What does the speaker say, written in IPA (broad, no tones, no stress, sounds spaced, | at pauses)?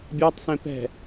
bʲ a tˤ s ẽ p ɛ̤